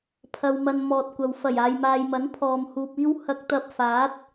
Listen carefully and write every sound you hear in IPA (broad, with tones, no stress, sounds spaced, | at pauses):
pʰ ɐ˨ w m ɐ˨ n m ɔː˨ t̚ kʷ ɐ˨ w f ɐ˨˩ j aː˨ j m aː˨ j m ɐ˨˥ n pʰ ɔː˨ m h uː˨ p̚ iː˥ w h ɐ˧ k̚ t̪ ɐ˧ p̚ f aː˨˥ t̚